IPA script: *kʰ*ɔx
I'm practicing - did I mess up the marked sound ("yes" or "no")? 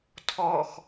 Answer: yes